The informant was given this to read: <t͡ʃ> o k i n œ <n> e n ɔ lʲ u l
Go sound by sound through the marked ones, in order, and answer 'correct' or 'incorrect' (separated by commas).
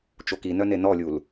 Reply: correct, correct